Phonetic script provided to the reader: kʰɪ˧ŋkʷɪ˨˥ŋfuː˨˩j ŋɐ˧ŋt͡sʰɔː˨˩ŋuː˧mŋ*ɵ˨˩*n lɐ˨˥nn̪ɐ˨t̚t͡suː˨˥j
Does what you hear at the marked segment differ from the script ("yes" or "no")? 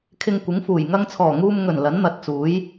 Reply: no